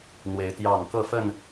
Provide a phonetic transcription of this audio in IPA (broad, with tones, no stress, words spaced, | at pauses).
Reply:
n̪we˨˦ɪ̯t̪jɑ˥˨ŋ kɤ˥˨fə˥˨n